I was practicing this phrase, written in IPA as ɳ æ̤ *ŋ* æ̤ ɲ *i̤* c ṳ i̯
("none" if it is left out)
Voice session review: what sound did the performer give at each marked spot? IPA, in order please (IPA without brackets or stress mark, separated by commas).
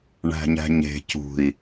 ɲ, e̤